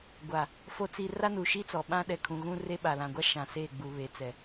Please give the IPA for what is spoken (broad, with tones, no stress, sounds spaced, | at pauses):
ɡʷ a˨ | f o˦ t͡s i˦ r a˦ n u˨ ʃ i˦ t͡s ɔ˨ ɓ ã˦ ɗ ɛ˨ kʰ ũ˨ ɣ ũ˦ r e˦ ɓ a˨ l ã˨ ɡʷ a˦ ʃ ã˨ s e˦˨ ɡ͡b u˨ β e˨ t͡s ɛ˨